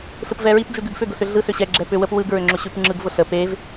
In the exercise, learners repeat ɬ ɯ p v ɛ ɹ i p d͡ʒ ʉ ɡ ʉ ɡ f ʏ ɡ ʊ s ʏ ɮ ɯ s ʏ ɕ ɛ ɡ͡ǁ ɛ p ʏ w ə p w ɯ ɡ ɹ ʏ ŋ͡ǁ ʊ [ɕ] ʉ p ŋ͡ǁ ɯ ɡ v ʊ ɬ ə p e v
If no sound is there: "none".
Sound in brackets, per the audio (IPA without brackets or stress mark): ɕ